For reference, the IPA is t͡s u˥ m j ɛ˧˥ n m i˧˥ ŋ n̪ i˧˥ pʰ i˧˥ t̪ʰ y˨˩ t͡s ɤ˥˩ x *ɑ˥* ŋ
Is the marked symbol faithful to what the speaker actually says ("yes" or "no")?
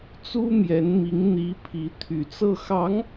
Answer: no